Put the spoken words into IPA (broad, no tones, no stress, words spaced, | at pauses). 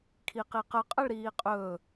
kʰiqiqə qʼəɭɾiːqʼɵ